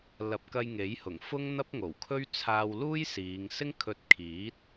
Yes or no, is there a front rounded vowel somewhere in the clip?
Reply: no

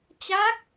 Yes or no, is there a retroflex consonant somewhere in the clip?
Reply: no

